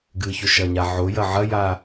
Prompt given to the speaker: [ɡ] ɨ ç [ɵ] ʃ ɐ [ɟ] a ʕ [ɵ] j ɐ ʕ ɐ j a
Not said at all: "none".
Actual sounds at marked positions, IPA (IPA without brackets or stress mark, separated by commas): ɡ, ɵ, ɲ, o